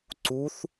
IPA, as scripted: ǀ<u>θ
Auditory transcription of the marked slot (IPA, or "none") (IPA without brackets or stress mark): u